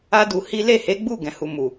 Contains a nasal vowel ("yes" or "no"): yes